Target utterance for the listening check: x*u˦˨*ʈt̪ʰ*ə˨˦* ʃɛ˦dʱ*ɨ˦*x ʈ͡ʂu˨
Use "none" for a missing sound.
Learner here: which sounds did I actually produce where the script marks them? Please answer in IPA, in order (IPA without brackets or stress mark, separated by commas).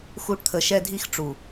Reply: u˦, ə˨˦, i˦